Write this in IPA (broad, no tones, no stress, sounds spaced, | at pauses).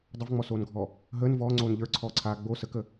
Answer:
dˤ ə v ŋ͡m ɔ s oː n ɡʱ ɔ | ɦ əː n v ɔː ŋ͡ǀ oː n ʎ ə˞ ǀʰ ɔː ǀʰ aː ɡ͡b o s ə k ə